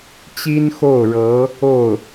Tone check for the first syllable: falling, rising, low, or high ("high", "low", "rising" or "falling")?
high